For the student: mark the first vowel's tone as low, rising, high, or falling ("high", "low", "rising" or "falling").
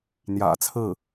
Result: low